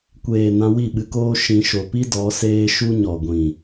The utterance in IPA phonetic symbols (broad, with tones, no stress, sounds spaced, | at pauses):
kʷ eː˨ n ã˧ w i˦˨ ɓ ɨ˧ k oː˦ ʃ ĩ˧ ʃ o˨ p i˦ d ɔ˨˦ s eː˦ ʃ u˦ ɲ ɔ˨ ɡʷ ĩ˨